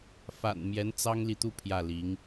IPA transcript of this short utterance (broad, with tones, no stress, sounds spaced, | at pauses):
f a̰˨˩ n m j ɛ˧˥ n t͡s ɑ˥ ŋ l i˨ t̪ u˥˧ pʰ j ä˥˩ l i˧˥ ŋ